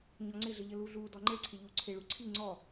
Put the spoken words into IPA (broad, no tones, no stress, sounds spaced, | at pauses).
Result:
ɲ ɔ ŋ͡ǀ ɪ ɮ ə ʎ ə l u ɮ u d ɔ ŋ͡ǃ ɪ ɭ ǀʰ ɪ ʎ u ǀʰ ɪ ɭ u ǀʰ i ŋ͡ǀ ɔ